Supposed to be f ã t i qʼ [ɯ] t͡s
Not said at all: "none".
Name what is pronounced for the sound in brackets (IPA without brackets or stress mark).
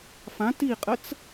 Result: ə